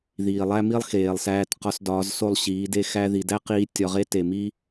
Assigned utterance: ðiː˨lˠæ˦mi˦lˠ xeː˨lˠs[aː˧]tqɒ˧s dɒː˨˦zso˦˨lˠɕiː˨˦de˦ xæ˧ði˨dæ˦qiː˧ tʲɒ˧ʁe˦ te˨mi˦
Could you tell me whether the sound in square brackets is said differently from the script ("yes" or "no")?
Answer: yes